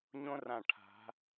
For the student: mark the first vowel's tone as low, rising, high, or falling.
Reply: high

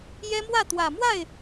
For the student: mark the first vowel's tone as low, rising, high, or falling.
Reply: high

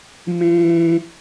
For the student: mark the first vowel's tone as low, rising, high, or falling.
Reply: high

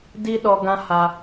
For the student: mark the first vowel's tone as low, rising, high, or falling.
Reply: high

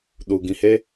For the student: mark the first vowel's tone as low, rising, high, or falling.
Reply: low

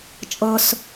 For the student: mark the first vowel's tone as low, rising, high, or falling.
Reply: high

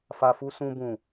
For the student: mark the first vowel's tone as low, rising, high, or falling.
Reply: low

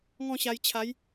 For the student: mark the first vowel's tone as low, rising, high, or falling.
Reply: falling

